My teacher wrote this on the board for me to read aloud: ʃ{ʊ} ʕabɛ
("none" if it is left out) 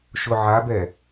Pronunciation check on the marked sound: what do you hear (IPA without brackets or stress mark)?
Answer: ʊ